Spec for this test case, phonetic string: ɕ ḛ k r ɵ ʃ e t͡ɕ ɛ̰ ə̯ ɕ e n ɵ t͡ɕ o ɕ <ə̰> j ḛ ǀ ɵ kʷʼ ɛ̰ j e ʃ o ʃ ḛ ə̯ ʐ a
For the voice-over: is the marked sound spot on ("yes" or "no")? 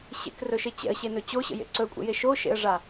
yes